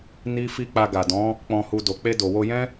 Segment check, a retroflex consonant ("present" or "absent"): absent